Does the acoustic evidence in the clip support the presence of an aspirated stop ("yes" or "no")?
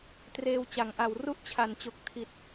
yes